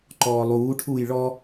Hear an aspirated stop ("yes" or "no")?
yes